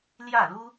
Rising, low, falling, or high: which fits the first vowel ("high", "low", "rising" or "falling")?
falling